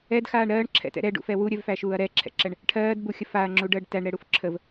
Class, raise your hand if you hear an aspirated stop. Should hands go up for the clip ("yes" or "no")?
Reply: yes